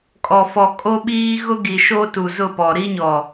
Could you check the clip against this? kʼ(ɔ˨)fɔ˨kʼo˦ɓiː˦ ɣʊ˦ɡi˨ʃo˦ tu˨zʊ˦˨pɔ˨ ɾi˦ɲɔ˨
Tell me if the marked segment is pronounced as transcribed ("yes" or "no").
yes